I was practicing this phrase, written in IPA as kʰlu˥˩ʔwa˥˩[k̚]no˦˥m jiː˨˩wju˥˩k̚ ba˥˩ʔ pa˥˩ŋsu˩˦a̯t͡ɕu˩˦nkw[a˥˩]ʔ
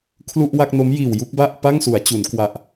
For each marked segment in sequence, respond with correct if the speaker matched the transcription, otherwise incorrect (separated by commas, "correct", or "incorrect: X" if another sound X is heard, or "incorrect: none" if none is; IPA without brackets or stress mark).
correct, incorrect: a˨˩